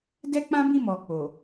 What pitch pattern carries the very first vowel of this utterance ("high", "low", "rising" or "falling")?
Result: high